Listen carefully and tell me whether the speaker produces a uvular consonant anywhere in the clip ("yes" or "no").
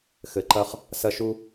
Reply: yes